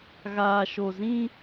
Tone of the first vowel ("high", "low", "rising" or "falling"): low